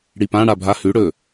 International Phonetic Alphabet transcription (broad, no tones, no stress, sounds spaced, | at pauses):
ɽ i p ã ɽ a bʱ a h ʉ ɽ ɵ